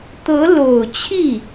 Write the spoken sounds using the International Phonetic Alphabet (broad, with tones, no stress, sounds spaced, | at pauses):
t̪ ɤ˧˥ l o˨˩ ʊ̯ t͡ɕʰ i˥˩